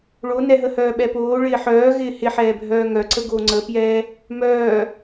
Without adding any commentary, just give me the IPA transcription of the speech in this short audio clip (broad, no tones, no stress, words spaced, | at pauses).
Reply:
ɭonɛɦəhœː ɓɛpoː ɭɪːħœːɣɪː hɪħɛːbʱœː ŋœǀəɡo ŋ͡ǀəpjɛː | mœː